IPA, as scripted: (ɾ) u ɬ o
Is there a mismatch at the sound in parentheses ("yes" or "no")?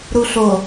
no